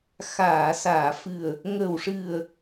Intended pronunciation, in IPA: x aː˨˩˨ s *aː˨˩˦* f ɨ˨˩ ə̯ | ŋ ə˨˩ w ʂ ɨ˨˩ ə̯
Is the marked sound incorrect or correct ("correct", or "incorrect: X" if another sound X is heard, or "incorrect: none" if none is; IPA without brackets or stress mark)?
incorrect: aː˨˩˨